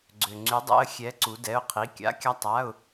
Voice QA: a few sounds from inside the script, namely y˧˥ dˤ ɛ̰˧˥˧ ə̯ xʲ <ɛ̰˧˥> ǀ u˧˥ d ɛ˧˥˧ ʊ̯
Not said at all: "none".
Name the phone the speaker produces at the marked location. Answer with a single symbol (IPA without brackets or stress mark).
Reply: ɛ˧˥